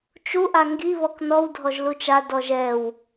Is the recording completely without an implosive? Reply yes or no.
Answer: yes